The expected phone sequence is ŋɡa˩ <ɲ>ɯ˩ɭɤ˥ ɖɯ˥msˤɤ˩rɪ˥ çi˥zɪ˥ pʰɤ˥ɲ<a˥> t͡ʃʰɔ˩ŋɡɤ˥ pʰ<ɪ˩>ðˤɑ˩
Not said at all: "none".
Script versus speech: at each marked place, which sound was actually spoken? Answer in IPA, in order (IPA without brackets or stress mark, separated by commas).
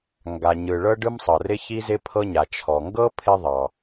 ɲ, a˩, ɪ˥